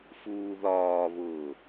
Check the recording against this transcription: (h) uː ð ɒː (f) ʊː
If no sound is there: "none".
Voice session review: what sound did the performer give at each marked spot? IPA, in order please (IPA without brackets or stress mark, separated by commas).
f, β